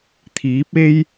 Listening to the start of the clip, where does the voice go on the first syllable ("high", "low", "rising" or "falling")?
rising